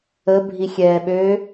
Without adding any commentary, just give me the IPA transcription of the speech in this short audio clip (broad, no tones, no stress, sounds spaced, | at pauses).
ə bʱ i xʲ ɛː ɓ ø